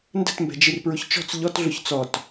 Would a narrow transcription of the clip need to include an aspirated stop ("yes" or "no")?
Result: no